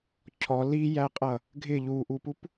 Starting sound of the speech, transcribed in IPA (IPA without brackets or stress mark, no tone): cʰ